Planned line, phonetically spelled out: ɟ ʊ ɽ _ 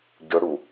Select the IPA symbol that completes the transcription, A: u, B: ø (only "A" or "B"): A